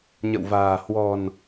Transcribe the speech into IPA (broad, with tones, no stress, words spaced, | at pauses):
ɲə̰˧˨wva̤ː˨˩ hwɔ̤˨˩n